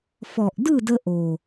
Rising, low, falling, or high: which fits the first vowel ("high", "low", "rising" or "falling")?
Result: low